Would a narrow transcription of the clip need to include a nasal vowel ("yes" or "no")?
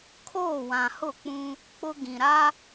yes